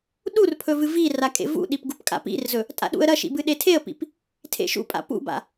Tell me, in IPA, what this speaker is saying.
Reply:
ɗ u r pʰ ɵ v ɨ v i r a kʼ ḛ v ṵ ɗ i p ɡ u p kʼ a̰ p ḭ r z ɵ | tʼ a̰ ɗ ṵ ə̯ ɾ ɐ ʃ ḭ b ɨ ɗ e tʰ e ə̯ p ḭ p | tʰ ḛ ʃ ṵ pʼ a̰ p ṵ b a̰

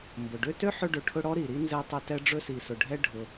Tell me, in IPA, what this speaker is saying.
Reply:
m b ʊ˩ ɖ ø˦ t ø˥ ħ ɵ˦ ɖ ɵ˨ ʈʰ ʊ˦ ɽ ɔ˥ ɾ i˩ ɾ i˥ n z ɛ˦ tˤ ɵ˦ t ɛ˥ ɖ͡ʐ ɵ˦ s i˨ s ʊ˨ ɖʱ ɛ˦ ɖʱ ʊ˨

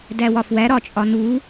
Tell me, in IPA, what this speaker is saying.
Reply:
d æ w ɒ f w æ ɾ ɒ t͡ʃʼ ɒ n u

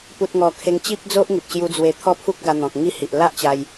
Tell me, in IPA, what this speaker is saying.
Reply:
p u˨ t̚ ŋ ɔ˨˩ kʰ e˧ ŋ t͡ɕ i˦ p̚ d͡z o˦ ʔ ŋ i˨ p̚ ɕ j u˧ d͡z w e˧ t̪ʰ ɔ˥˧ pʰ u˦ k̚ ɡ a˧ n̪ ɔ̃˨ k̚ ŋ i˦ h i˨ ʔ l a˦ ʔ t͡ɕ a˧ j

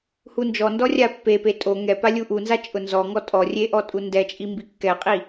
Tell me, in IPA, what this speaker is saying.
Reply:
h u n d͡ʒ ɔ n d ɔ rʲ a pː e p e tʼ o ŋ ɛ p a lʲ u ʔ u n z a t͡ʃʼ ʊ n z ɔ ŋ ɔ tʼ ɔ rʲ e ʔ ɔ tʼ u n d ɛ t͡ʃʼ i m b i kː ɛ qʼ i

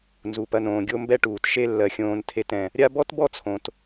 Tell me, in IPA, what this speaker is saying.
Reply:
n z u˩ p ɐ˨ n õː˩ ɡʲ o˦ m b ɛ˦ ʈ uː˩ t ʃ e˦ lː ɜ˩ xʲ õː˨ n tʰ e˨ t ɛ̃˩ | ɾʲ a˦ b ɔ˥ t b ɔ˥ t͡sʰ õ˩ t

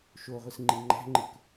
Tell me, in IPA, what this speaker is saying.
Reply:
ʃ o ʁʷ ɯ s ŋ͡ǃ i ŋ͡ǃ æ̤ ŋ͡ǃ ɯ k

